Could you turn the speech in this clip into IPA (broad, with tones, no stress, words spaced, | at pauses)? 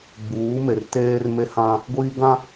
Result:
ɡ͡buː˨˦me˨r teː˦r me˦hã˦ | ɡʷiː˦ɡã˦